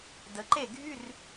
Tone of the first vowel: rising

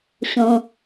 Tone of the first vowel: low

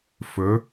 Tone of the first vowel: rising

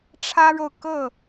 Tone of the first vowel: high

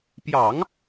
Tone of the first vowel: low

